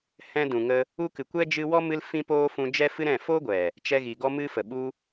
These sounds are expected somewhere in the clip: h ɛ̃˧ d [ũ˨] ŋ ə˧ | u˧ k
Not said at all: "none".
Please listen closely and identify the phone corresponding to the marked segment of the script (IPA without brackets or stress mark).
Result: ũ˨